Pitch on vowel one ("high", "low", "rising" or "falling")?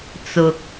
low